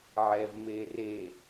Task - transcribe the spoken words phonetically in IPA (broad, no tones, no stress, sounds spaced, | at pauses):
ʕ ɛ v m e r e